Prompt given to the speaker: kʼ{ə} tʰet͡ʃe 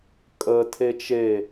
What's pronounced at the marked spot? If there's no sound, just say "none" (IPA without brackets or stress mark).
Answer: ə